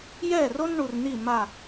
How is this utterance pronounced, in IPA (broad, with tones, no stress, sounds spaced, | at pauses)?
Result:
j ɛ˥˨ r o˥ n ɳ u˨ r n i˥˨ m a˥˨